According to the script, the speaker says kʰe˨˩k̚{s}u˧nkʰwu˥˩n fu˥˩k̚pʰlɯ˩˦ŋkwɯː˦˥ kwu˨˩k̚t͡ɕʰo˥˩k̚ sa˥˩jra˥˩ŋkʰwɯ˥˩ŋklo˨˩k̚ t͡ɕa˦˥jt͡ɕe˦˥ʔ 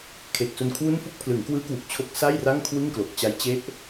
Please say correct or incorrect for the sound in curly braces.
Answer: correct